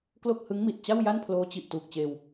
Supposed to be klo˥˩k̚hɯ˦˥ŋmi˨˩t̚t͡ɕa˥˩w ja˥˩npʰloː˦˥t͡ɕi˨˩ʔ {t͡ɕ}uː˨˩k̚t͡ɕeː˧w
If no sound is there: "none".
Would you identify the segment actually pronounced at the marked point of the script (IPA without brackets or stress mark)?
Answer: t